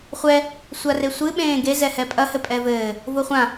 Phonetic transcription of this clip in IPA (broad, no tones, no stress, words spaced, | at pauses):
χʷɛ | sʷaresʷɨ ɓẽːɡezɛ hɛpʼɐhɘ pʼɛvɘː | voχʷã